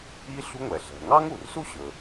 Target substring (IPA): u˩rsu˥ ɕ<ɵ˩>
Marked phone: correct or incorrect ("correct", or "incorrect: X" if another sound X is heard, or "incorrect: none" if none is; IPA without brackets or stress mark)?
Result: correct